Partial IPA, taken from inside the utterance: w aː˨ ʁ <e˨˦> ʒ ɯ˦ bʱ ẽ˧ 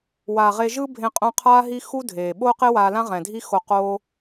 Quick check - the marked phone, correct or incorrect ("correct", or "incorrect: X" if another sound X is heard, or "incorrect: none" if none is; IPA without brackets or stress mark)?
incorrect: e˧